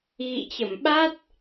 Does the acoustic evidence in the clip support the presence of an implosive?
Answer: yes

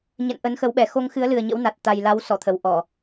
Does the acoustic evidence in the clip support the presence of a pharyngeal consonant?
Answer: no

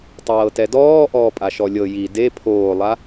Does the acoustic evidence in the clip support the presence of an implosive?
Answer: no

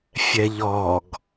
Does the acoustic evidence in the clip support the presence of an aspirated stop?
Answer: no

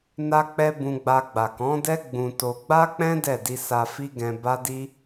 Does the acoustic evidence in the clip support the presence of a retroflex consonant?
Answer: no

